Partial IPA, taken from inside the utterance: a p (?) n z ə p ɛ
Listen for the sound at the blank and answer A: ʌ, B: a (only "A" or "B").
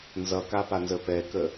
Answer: B